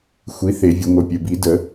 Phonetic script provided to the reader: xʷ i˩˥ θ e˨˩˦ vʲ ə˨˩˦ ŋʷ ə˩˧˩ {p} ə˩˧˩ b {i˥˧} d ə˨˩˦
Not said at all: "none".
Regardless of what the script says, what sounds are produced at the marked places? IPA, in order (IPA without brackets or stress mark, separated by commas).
pʲ, i˨˩˦